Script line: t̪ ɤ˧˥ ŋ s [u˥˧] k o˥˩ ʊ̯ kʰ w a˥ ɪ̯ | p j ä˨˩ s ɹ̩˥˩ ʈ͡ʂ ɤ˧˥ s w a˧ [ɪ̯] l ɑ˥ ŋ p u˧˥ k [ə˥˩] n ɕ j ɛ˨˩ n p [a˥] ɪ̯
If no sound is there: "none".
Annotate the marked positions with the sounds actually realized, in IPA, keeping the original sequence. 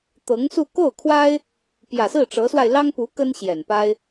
u˥˧, ɪ̯, ə˥, a˥

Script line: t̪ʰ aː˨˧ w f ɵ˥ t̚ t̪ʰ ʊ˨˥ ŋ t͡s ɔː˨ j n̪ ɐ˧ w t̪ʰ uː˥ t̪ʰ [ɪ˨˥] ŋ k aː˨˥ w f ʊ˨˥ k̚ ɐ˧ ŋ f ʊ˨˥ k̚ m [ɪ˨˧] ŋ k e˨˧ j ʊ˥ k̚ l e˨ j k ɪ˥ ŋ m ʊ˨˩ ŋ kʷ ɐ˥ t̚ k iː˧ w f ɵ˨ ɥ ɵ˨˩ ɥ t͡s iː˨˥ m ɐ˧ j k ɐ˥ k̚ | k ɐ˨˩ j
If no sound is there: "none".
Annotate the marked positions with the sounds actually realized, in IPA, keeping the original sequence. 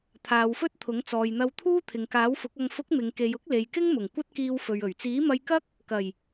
ɪ˨, ɪ˨˧

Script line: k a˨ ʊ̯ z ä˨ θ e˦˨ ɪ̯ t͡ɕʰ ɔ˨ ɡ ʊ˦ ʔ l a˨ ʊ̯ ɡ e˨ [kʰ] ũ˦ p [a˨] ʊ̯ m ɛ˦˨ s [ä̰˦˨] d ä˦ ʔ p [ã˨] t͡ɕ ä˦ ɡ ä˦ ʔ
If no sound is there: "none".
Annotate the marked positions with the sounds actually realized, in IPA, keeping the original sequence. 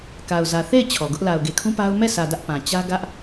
kʰ, a˦, ä˨, ã˨

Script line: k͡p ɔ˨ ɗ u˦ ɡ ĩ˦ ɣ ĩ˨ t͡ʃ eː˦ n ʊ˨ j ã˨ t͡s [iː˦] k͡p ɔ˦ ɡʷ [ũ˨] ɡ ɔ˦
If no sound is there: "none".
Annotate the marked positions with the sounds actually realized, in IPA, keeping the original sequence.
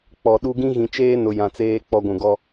eː˦, ũ˨

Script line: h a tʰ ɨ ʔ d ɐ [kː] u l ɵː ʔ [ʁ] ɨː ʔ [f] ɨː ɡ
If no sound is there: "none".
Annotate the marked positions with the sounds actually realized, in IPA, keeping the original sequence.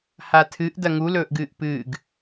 ŋ, ɡ, p

